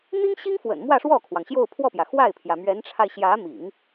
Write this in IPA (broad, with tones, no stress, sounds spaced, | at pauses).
n̪ i˥ ŋ ɕ i˥ ŋ f w ə̰˨˩ n m w ä˥˧ ʂ w ɔ˥˩ kʰ w ɑ˩ ŋ ɕ j o˥˧ ʊ̯ pʰ w ɔ˥˩ p j ä˩ x w a˥˩ ɪ̯ pʰ j ä˩ m ɥ ɛ˧˥ n ʈ͡ʂʰ a˧ ɪ̯ ɕ j ä˧˥ m ḭ˨˩˦ ŋ